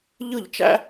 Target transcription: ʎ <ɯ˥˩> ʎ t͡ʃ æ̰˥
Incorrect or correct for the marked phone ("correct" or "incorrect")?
correct